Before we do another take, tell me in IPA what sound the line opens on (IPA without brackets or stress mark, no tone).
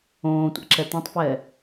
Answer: õː